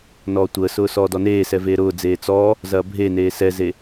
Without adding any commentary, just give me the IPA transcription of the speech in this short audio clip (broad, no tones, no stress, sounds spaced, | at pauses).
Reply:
n ɔː tʷ əː s ʊː s ɔː d ɔ n eː s ɛ v eː ɾ ʊː d͡z eː t͡s ɔ | z ɐː bʱ e n eː s ɛ z e